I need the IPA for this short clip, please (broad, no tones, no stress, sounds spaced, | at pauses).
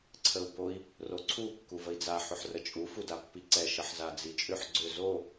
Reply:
ǀʰ ə u̯ b o i̯ | r o ǀʰ u kː u v ə i̯ d͡z a ħ ʏ ħ r ə t͡ʃʼ u f u d a pː i ǀ ɛ ʃ ə ħ z a d͡z i t͡ʃʼ ʏ ħ ɡ͡ǀ ʏ z o